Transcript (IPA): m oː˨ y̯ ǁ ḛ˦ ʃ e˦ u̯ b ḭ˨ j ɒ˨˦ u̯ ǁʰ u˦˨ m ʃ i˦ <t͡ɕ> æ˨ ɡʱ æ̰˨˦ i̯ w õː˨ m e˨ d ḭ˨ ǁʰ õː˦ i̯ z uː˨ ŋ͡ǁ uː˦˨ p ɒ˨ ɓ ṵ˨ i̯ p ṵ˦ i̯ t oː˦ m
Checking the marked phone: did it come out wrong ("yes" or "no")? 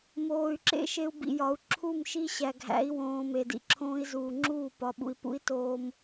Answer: yes